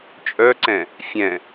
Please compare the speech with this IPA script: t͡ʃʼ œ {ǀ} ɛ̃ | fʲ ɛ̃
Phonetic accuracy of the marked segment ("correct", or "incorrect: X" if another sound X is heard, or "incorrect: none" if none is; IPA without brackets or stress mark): correct